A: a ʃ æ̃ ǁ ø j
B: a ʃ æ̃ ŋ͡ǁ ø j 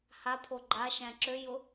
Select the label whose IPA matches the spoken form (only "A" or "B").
A